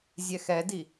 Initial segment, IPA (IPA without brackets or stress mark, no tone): zʲ